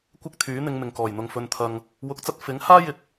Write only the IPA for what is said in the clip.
kʷɪ˥k̚t̪ʰyː˨˥n̪ɪ˨˧ŋ mɪ˨ŋkɔː˨˩jn̪ʊ˨ŋ fɵ˨nt̪ʰɐ˨ŋ | wʊ˨˥k̚t͡sɐ˧t̚fɪ˨˥ŋhaː˥ jɪ˧k̚

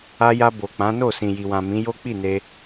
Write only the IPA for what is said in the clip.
a˧ja˧ bo˨k͡pã˨˦no˦˨ sĩ˨ji˨wã˨ mĩ˨˦jo˦k͡pi˦˨ne˧

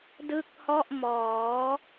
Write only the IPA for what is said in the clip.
dɯ˦˥k̚hɔ˥˩ʔ mɔː˩˦

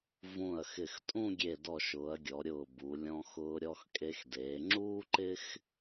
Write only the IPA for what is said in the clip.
vũ˧˩ɐ̯xɪ˧˩xtʼũ˥˧ ɡʲe˧˩dɔ˧˩ʃʊː˩˧ɐ̯ɡʲɔ˩˧ ɾʲʊː˧˩bu˩˧ lʲɔ̃˧xʊː˧ ɾʲɔ˧xkʼe˧xdeː˩˧ ŋ͡ǁuː˥ǃɪ˥x

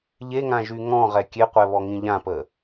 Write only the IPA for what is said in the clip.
ʎeŋãʒy ŋɔ̃ʁɛ kʲeqʷɛβɔŋĩ ʎãpə

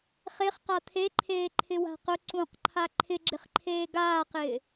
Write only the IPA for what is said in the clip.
χeχqa t̪ʰeǃʰeːǃʰɪwa̤ qʊ ǀũqǃʰa ǃʰɪɡ͡ǁɪχǃʰeː ɡaːqɪː

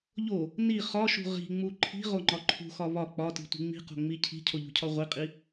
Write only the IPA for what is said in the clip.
ʎo | ni χɒʃṳ ʁi̤ŋ͡mu ǃʰi̤ʁoŋ͡ǃɒ ǃʰṳxɒ βɒ k͡pɒti̤tʷi̤ ŋ͡mi̤qo̤ŋ͡mi cʰi̤cʰoʎṳcʰɒ ʁʷiqʼi

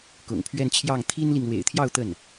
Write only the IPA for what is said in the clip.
kʊ̰˨˩ŋpʰɥɛ˥˧nt͡ɕʰjɑ˥˩ŋ t̪ʰi˥nli˨ŋ lwḛ˨˩ɪ̯t̪ʰjɑ˥˧ʊ̯ t̪ə˥˩n

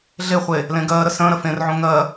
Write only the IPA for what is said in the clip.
ɮe χʷe | lẽɡɜːɾə sə̃ːɾə fẽrʕõ ŋɜ

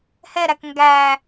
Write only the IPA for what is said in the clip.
hɛɾæk ŋɡæ

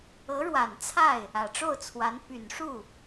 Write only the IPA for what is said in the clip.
ɤ˧˥ɻwa˨˩nt͡sʰa˥˩ɪ̯ | ä˨˩ʈ͡ʂo˥˩ʊ̯t͡sʰwa˧˥n py˨˩nʂu˥˩

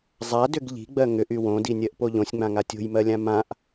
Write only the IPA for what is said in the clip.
zˤadʏɡ ʎi̤ɡ͡bɜ ŋʏʔy wõdinʲɜʔpo ʎõsʲŋ͡mãŋa tʲo̤jmɜlʲã mãʔ

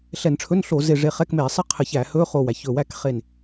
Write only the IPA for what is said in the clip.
ɬɛ˧˩˧nʈ͡ʂʰɵ˧˥˧nɬo˧˩˧ ze˧˩ʐe˧˩χɛ˧˥˧kmeː˧˩˧ sˤɪ˥˨qʰɘ˧˩˧ç æ˧˩˧hɵː˧˥˧ χo˧˩wæ˧˩çɵ˧˩wæ˥k χe˧˩n

